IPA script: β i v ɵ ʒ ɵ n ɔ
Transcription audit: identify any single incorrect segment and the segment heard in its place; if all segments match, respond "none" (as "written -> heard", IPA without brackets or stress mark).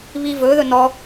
ʒ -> ð